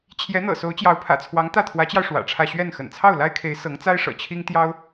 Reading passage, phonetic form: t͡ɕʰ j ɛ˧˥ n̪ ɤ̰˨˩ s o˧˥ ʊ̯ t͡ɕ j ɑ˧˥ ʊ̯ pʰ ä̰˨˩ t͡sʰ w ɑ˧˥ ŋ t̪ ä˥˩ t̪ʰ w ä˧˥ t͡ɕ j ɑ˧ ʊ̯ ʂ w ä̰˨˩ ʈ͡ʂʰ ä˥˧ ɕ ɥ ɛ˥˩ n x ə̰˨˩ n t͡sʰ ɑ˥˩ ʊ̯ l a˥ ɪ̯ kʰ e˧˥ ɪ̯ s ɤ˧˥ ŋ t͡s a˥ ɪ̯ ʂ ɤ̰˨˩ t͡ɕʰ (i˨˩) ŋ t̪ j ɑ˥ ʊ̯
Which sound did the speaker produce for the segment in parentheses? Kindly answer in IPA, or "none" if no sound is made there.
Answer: i˥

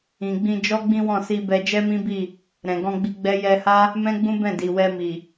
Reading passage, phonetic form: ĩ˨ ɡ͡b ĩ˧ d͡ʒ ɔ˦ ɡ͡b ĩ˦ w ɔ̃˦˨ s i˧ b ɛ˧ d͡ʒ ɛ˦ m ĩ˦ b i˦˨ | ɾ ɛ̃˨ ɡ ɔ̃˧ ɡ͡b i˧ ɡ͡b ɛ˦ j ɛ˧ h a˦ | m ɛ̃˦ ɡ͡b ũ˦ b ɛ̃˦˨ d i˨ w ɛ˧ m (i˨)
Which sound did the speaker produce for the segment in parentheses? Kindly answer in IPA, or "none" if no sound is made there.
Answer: i˨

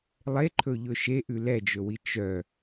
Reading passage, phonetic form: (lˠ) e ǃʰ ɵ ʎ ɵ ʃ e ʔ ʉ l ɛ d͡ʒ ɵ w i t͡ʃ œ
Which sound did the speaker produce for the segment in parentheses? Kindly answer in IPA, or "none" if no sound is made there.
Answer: lˠ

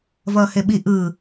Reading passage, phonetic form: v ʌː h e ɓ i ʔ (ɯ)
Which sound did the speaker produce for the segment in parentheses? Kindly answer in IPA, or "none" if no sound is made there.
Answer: ɯ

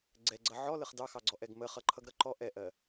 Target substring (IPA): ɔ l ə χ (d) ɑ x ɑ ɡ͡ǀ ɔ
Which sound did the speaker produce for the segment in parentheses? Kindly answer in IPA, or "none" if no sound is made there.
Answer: d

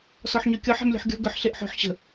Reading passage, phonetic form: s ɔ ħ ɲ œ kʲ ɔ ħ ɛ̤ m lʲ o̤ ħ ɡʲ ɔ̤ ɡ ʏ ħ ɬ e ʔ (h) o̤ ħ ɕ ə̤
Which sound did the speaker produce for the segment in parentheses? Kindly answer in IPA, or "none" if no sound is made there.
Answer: ħ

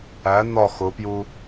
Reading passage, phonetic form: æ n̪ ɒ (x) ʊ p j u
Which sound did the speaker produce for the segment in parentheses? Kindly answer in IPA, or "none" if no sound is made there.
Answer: x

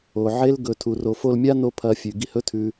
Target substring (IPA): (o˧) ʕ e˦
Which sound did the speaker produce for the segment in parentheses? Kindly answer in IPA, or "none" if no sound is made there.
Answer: o˨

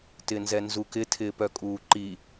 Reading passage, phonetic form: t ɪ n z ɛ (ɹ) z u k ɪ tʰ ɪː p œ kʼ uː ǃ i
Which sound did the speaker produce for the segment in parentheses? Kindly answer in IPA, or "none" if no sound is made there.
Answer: n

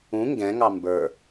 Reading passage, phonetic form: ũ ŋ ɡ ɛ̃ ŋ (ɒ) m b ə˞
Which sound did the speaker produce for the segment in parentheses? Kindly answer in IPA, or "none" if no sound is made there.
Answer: ɑ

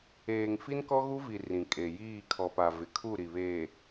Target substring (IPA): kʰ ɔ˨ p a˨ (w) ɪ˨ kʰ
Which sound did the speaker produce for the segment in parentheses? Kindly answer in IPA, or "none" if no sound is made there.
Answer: v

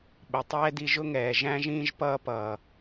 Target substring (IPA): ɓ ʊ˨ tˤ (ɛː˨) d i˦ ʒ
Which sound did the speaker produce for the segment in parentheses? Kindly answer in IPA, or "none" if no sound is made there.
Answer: ɛː˥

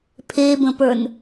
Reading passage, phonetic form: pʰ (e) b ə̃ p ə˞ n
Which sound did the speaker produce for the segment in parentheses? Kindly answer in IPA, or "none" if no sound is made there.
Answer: e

